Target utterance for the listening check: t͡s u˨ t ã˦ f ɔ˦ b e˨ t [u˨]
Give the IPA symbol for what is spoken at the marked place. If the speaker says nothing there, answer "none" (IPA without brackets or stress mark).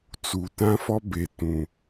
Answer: ũ˨